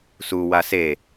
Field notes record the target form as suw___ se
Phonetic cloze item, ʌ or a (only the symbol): a